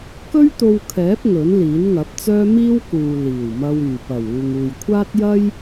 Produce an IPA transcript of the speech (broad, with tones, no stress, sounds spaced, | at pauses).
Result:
k ɵ˥ ɥ t̪ o˧ w kʰ ɛː˨˥ p̚ ŋ ɵ˨˥ n l iː˨˥ n ŋ ɐ˨˥ p̚ t͡s œː˥ m iː˥ w k uː˨ l iː˨˩ w m ɐ˧ w yː˨˩ p ɐ˨˩ w uː˨ ŋ uː˨ j kʷʰ aː˥ t̚ j ɐ˥ j